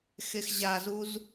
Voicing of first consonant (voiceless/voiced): voiceless